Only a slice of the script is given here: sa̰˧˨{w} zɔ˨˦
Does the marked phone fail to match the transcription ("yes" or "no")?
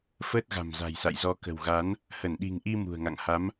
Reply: yes